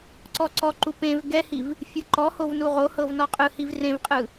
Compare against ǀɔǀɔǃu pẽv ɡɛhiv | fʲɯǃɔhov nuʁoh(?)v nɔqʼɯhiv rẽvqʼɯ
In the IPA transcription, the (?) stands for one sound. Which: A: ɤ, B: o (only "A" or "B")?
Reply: A